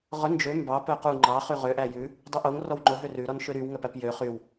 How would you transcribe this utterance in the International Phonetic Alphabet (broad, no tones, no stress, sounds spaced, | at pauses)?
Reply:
ʁ ɵ n d͡ʒ ø m b ɑ p œ q u ŋ͡ǃ ɑ χ y ʁ ø ʔ æ j ʉ | dˤ u ʔ o ŋ r ɔ w ŋ͡ǃ o ɦ ø r ʉ ɾ ɔ n ʃ ø ɾ y w ŋ œ p æ p j ø χ y w